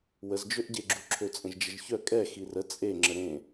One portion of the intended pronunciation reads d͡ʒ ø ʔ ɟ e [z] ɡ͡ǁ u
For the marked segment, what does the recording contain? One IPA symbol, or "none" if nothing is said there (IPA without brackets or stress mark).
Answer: none